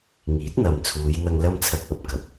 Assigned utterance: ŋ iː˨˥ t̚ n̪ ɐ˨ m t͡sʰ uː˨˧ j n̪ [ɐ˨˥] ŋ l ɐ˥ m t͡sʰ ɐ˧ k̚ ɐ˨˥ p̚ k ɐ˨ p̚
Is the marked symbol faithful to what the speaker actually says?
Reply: no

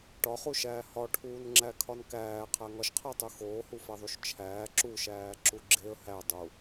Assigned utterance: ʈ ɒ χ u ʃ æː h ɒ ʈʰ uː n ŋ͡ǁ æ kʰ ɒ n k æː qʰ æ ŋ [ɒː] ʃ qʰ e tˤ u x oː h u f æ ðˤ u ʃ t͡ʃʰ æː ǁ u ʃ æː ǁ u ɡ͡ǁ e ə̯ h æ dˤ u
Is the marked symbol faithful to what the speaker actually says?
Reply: no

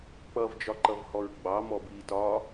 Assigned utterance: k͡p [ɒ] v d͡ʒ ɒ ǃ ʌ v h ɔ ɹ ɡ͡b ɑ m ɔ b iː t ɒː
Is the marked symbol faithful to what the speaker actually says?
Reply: no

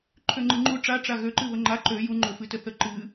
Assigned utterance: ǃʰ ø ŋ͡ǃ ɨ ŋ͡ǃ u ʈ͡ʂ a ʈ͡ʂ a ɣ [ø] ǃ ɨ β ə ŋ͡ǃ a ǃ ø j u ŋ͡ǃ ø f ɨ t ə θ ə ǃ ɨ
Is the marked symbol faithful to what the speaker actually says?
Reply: yes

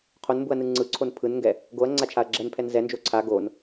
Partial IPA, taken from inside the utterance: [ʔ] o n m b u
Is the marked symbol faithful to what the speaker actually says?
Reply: no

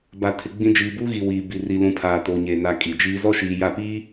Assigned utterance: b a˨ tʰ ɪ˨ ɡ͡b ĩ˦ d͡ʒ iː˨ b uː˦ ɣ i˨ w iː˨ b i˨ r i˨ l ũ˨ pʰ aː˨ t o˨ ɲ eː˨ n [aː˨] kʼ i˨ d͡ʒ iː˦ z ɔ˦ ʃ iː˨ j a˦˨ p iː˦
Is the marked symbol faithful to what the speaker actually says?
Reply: no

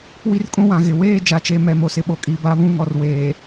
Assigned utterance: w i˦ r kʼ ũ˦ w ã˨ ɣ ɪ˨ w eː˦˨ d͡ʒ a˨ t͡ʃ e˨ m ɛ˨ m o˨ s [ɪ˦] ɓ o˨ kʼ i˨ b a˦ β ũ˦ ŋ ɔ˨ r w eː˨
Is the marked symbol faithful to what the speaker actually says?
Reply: yes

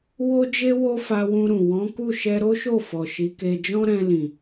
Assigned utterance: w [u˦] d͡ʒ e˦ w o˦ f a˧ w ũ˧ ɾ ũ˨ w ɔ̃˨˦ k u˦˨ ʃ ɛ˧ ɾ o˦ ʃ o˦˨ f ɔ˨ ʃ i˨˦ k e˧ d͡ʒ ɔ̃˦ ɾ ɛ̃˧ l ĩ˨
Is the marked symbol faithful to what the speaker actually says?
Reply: no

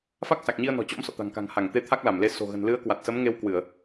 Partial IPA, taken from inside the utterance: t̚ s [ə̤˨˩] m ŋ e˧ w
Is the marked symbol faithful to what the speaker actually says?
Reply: no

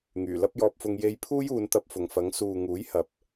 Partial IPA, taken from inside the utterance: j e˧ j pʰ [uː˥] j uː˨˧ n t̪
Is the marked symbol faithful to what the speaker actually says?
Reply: yes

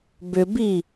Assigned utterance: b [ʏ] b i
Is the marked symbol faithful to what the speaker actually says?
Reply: yes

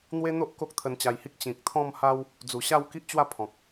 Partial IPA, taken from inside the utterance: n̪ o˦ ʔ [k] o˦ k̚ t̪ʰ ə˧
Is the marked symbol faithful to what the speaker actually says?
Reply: yes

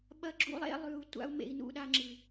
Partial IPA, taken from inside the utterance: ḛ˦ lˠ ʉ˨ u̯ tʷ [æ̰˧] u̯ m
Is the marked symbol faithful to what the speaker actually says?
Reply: no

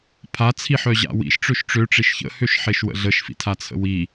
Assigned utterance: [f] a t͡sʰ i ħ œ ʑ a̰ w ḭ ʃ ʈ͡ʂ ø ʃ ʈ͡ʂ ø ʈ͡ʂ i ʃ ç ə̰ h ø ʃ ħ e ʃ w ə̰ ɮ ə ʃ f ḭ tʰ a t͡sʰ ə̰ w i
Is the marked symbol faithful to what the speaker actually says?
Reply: no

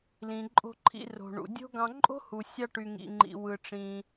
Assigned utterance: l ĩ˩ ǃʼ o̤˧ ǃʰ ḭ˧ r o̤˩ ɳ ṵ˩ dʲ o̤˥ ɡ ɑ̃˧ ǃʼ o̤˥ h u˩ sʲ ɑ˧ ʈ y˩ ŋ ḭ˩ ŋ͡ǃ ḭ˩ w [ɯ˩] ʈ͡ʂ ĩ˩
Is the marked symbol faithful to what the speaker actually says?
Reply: yes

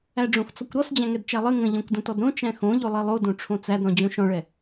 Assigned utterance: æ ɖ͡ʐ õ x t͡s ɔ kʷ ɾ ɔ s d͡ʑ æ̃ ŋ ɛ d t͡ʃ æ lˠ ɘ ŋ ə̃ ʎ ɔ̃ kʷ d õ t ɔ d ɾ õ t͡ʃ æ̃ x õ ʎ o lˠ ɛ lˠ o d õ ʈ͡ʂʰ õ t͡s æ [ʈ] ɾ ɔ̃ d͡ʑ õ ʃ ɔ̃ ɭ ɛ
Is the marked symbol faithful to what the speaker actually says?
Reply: no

